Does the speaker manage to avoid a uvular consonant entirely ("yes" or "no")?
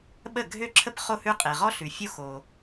no